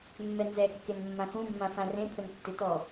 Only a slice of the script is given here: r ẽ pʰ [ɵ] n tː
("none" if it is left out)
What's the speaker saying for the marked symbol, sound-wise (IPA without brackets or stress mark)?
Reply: ɵ